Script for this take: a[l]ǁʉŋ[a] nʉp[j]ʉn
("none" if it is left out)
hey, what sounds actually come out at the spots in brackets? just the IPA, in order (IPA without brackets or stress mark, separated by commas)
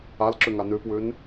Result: l, a, w